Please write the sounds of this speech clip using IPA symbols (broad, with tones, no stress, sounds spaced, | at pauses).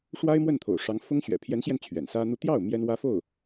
ʂ w a˥ ɪ̯ m w ə˥˩ n t̪ʰ o̰˨˩ ʊ̯ ʂ ɑ˧˥ ŋ f ʊ˥ ŋ ɕ ɥ ɛ̰˨˩ pʰ j ɛ˧˥ n ɕ j ɛ˧ n t͡ɕʰ ɥ ɛ̰˨˩ n s ä˥ n̪ u˥˧ t̪ j ɑ˥˩ ʊ̯ m j ɛ˥ n w ä˥ f o˥˩ ʊ̯